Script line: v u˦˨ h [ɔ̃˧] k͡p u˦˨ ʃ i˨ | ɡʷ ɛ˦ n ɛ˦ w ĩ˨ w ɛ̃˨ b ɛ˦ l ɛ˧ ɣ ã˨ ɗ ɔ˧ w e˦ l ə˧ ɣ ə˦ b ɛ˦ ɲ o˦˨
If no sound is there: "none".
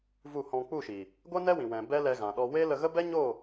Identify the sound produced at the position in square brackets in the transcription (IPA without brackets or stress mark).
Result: ɔ̃˧